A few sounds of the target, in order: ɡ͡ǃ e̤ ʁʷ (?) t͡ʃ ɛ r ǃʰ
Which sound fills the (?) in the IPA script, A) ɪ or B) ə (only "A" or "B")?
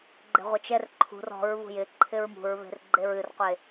B